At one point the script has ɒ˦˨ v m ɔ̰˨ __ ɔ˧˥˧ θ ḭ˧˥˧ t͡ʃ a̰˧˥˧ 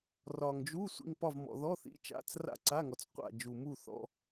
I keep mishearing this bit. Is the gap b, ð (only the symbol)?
ð